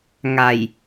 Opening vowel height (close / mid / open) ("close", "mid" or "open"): open